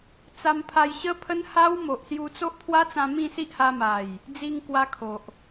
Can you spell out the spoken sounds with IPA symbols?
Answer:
t͡s a˧ m pʰ a˧ j ɕ ə˦ pʰ ə˦ n h a˦ w m o˨ ʔ s j u˧ t͡s o˦ ʔ pʰ w a˦ t͡s ã˧ m ĩ˥˧ s i˦ ʔ h a˧ m a˨˩ j | d͡z i˧ ŋ k w a˦ kʰ o˨ ʔ

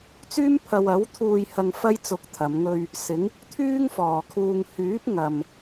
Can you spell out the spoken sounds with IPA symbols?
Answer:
t͡s yː˥ m pʰ ɐ˧ w ɐ˨˥ w t̪ʰ uː˧ j h ɐ˧ ŋ f ɐ˥ j t͡s ʊ˧ k̚ t̪ʰ ɐ˨˧ m ŋ ɵ˧ ɥ | s ɪ˨˧ ŋ | t̪ʰ yː˥ ŋ f ɔː˨ kʰ uː˧ ŋ h yː˨˥ p̚ ŋ ɐ˨ m

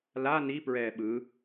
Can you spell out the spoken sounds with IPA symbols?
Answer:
l a n i p ɹ ɛː ɓ ɯ

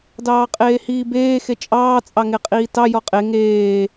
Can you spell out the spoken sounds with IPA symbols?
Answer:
d ɑː qʼ eː h iː b eː x e t͡ʃʼ ɑː t͡sʼ ɑ ŋ e qʼ iː t ɑ j ɔ qʼ e ŋ eː

